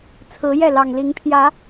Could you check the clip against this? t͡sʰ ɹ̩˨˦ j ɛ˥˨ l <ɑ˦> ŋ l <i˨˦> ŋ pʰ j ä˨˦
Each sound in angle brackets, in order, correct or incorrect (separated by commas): incorrect, correct